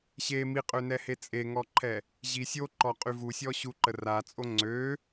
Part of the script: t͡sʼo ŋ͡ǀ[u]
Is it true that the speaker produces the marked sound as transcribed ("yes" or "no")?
no